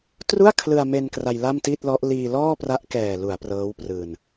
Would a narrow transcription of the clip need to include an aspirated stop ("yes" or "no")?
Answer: yes